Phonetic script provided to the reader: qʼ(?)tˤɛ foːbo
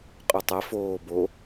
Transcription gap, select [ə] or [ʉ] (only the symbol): ʉ